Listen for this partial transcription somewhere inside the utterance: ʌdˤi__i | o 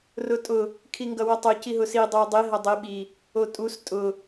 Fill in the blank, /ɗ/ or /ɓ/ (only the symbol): ɓ